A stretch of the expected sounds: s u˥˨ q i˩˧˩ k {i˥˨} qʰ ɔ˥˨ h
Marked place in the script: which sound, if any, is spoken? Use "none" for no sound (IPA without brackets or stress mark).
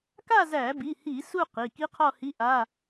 i˦˥